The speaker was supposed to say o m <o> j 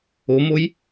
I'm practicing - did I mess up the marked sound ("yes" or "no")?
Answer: no